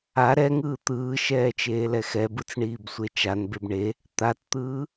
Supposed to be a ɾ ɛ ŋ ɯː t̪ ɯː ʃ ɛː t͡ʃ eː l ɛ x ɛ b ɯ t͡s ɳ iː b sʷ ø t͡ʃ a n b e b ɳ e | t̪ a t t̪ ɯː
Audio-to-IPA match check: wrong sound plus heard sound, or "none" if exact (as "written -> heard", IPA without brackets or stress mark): ø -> e